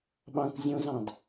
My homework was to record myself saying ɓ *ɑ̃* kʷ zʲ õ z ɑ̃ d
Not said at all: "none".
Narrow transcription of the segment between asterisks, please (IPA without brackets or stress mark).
ɑ̃